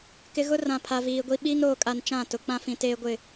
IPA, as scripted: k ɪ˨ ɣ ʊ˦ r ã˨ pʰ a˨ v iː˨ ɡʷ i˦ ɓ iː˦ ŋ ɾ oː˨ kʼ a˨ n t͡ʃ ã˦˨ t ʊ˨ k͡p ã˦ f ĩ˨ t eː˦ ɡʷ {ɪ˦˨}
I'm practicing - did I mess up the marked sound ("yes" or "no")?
no